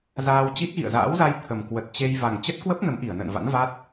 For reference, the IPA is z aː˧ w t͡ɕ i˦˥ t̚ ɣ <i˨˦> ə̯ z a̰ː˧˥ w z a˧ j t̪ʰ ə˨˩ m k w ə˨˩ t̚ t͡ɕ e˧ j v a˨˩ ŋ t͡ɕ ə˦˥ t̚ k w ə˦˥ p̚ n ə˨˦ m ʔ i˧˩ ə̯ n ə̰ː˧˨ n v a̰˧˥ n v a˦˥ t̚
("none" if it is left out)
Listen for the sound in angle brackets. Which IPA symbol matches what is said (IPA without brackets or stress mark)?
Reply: ḭ˧˨